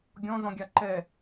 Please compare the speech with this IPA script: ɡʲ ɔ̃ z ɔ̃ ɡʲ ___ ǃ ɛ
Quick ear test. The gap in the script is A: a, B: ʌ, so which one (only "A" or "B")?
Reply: A